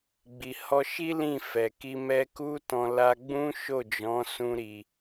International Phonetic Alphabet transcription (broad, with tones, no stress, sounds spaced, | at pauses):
ɡ͡b i˨ h ɔ˧ ʃ i˦ l ĩ˦˨ f ɛ˨ k i˧ m ɛ˧ k u˦ t ɔ̃˧ l a˧ ɡ͡b ũ˦ ʃ o˦˨ d͡ʒ ɔ̃˨˦ s ũ˦ ɾ i˧